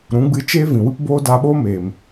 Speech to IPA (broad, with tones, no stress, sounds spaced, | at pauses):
ɾ ũ˨˦ ɡ͡b ɨ˧ t͡ʃ eː˦ v ĩ˨ w ɨ˦ p b oː˦ d a˧ ɓ o˦ m eː˨ m